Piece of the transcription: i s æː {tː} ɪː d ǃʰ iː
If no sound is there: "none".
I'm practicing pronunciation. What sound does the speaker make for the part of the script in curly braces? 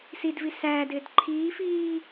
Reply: d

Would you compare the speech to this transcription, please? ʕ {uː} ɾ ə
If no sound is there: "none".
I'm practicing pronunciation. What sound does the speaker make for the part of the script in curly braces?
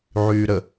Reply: yː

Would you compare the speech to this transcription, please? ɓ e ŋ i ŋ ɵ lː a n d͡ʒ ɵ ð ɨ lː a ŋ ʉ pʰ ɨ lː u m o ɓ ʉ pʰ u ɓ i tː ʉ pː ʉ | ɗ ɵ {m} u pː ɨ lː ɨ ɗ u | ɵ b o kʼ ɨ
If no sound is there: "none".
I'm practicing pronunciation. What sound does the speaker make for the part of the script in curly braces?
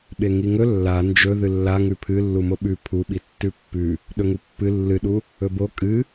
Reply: ŋ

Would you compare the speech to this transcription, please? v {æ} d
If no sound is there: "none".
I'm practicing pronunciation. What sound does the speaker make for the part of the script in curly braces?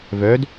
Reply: œ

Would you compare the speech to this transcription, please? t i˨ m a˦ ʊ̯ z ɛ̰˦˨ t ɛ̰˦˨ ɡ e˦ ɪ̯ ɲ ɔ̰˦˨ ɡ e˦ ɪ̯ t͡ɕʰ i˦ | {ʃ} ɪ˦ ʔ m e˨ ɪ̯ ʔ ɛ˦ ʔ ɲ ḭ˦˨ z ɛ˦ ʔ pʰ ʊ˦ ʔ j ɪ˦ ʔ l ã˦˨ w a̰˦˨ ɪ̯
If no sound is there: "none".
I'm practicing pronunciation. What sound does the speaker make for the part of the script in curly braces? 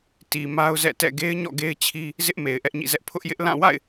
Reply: z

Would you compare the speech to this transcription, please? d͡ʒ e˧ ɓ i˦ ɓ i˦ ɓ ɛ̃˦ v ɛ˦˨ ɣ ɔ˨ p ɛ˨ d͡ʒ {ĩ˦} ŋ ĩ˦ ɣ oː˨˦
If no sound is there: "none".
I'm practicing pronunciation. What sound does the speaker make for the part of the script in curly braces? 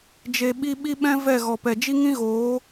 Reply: i˦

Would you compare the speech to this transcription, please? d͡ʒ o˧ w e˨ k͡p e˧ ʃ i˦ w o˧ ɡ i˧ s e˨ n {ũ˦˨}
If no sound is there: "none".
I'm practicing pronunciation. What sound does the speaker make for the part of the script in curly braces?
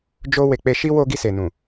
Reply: ũ˨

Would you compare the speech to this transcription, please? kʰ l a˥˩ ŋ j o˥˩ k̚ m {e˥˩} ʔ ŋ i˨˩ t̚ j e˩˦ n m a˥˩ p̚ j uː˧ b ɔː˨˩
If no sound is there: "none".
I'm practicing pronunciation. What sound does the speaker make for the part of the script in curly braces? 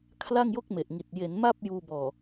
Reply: e˨˩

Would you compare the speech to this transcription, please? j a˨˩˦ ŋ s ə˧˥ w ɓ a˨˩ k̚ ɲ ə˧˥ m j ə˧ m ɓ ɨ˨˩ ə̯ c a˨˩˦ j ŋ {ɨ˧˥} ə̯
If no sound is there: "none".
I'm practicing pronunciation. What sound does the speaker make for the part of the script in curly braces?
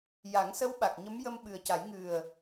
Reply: ɨ˨˩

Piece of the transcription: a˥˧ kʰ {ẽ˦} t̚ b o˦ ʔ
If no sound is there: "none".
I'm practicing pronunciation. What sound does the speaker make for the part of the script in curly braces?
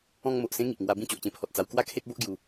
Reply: e˦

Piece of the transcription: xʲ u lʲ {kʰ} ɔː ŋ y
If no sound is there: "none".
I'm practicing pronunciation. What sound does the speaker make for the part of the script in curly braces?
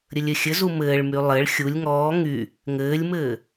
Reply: ŋ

